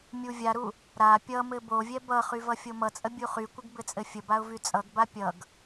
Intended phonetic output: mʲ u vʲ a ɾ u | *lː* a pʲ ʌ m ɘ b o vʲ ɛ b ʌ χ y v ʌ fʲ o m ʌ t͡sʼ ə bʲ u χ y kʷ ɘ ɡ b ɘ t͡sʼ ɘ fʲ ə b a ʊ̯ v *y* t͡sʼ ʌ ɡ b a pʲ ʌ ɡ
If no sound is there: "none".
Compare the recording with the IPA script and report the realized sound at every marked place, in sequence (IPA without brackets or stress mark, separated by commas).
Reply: ɾ, y